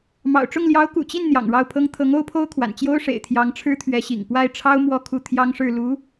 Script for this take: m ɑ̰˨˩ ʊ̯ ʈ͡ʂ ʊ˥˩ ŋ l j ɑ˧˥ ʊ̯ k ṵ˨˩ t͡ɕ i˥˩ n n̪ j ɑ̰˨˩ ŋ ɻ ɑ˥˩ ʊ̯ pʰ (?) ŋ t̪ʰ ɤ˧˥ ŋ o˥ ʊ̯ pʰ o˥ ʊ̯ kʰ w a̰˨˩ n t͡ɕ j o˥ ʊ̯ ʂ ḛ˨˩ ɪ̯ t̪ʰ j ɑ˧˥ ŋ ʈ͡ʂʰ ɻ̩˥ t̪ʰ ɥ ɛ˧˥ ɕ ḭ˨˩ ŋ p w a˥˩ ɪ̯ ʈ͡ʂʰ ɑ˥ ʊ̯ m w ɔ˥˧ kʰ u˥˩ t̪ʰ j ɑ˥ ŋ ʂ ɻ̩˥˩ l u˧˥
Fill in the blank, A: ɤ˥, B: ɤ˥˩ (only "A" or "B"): A